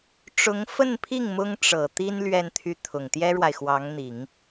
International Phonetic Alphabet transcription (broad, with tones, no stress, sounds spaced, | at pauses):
ʈ͡ʂ ʊ˧˥ ŋ f ə˥˧ n pʰ i˥˩ ŋ m ʊ˥ ŋ ʈ͡ʂ ɤ˨˩ t̪ i˥ n l ɥ ɛ˥˧ n t̪ʰ y˥˩ t̪ʰ ʊ˨˩ ŋ t̪ j ɛ˥ ɻ w a˨ ɪ̯ x w ɑ˧˥ ŋ n̪ i˨˩˦ ŋ